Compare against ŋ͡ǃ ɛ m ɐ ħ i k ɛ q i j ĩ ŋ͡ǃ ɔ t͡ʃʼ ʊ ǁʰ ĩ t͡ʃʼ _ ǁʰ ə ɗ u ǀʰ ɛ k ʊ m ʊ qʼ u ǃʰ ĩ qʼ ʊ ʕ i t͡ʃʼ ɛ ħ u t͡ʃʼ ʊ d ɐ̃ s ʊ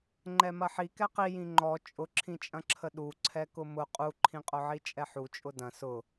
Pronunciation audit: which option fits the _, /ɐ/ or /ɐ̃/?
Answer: ɐ̃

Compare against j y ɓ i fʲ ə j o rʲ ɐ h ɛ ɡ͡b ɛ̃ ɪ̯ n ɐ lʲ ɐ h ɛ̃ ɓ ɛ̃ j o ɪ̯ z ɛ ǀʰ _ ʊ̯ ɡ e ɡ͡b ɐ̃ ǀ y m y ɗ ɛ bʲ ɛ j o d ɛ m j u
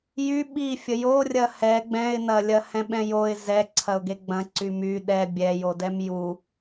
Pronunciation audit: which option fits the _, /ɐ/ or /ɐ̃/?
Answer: ɐ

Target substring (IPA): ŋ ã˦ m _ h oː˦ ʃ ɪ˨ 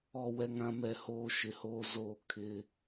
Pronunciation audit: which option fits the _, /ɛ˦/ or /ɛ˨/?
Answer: ɛ˦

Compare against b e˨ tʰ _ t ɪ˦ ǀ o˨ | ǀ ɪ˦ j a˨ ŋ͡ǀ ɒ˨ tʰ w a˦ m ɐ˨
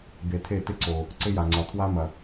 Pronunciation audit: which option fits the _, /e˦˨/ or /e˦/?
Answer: e˦˨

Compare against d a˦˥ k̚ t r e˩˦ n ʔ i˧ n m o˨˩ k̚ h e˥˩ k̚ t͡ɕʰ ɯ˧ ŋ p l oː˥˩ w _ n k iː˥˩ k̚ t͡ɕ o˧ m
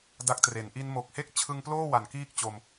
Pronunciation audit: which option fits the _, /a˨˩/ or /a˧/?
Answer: a˨˩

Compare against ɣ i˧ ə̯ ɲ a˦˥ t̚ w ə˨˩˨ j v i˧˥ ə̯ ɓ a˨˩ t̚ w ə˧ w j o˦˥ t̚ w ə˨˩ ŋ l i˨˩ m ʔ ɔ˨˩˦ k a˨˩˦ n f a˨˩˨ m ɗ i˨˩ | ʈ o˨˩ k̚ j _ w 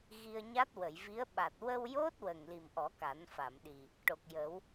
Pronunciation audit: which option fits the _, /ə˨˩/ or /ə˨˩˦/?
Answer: ə˨˩˦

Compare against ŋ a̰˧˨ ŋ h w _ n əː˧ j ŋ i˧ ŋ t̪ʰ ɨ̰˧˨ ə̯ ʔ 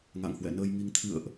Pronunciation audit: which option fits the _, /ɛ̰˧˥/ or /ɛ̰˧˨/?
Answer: ɛ̰˧˨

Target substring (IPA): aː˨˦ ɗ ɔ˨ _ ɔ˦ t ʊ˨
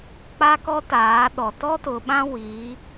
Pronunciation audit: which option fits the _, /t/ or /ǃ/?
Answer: t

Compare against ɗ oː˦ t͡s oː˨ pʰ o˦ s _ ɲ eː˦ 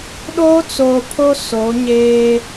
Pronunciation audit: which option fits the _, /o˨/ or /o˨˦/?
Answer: o˨˦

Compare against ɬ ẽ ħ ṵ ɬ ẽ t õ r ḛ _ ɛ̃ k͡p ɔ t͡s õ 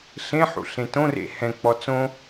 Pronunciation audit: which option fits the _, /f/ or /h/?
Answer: h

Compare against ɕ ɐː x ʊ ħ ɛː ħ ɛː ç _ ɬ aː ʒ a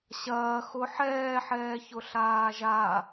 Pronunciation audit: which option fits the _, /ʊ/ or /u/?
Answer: ʊ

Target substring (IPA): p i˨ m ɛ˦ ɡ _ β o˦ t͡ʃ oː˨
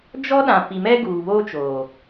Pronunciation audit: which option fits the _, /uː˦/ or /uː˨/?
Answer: uː˨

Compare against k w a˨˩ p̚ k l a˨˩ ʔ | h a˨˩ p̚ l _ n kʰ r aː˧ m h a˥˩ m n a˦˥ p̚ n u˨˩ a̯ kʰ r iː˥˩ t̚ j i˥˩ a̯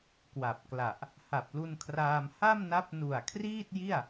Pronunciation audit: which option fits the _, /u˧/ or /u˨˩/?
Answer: u˧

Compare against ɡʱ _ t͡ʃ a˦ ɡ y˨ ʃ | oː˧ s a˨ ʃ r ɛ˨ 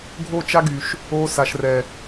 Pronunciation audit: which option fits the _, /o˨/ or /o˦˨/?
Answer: o˦˨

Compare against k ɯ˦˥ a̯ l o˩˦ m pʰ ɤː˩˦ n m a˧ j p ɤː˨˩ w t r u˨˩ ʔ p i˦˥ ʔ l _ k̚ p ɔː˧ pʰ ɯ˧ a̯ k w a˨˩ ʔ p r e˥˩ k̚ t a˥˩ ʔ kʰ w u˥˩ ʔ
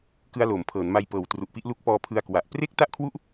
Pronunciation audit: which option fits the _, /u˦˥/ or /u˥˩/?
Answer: u˦˥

